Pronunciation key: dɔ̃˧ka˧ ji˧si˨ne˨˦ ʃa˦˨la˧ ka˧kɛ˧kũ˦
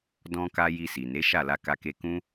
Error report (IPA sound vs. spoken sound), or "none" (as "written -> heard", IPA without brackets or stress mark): ɛ˧ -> e˧